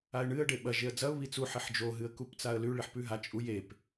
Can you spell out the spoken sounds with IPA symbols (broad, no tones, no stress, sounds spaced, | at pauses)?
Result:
a ɪ̯ ɳ ɨ ə̯ ɖ e ɓ ɐ ʒ e ə̯ d͡z ɐ ʊ̯ β i t͡s u ħ i ħ d͡ʒ o ɦ ɨ ə̯ k u p t͡s a ə̯ l ʉ ɭ i ħ p ʉ ɦ a t͡ʃʼ u j e p